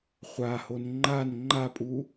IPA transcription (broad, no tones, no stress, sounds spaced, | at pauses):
χʷ a h o n ŋ͡ǃ a n ŋ͡ǃ a pʼ u